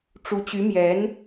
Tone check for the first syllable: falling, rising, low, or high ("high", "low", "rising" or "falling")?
rising